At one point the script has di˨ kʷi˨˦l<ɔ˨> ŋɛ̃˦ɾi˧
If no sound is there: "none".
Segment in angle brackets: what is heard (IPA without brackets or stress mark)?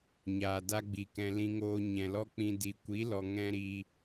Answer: ɔ˨